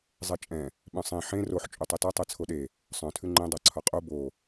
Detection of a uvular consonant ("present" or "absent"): present